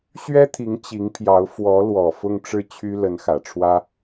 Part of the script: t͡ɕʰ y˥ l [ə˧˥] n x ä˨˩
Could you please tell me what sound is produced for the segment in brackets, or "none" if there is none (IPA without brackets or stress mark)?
ə˧˥